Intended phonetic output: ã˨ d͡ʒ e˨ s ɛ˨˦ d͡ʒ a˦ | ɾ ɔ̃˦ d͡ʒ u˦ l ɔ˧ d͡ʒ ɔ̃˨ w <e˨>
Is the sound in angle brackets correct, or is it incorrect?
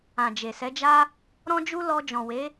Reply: incorrect: e˨˦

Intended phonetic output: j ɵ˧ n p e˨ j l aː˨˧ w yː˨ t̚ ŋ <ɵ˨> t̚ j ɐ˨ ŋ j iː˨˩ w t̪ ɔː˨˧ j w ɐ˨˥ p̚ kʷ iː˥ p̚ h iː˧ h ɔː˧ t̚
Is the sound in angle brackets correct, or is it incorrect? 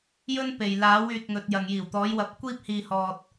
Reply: correct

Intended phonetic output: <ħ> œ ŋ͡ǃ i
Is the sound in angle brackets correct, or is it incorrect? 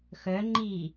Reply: incorrect: x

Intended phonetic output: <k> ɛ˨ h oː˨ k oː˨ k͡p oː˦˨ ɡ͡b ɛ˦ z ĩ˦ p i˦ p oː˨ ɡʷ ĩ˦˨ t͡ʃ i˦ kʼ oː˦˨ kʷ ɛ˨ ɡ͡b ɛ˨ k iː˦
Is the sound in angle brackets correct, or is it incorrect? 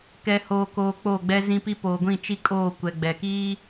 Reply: correct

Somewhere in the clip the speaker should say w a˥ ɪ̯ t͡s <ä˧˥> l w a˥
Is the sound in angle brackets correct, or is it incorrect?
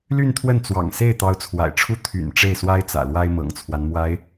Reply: incorrect: ä̰˨˩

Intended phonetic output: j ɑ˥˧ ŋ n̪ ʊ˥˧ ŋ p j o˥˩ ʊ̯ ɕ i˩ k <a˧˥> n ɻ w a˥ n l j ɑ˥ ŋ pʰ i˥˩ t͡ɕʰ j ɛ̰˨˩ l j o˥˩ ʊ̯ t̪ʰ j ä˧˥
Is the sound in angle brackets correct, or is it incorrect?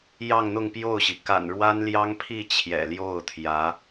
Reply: incorrect: a̰˨˩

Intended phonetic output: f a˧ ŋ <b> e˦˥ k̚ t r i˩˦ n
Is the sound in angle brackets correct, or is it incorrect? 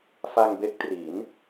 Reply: correct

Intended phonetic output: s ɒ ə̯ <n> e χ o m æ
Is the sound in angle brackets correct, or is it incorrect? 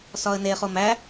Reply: correct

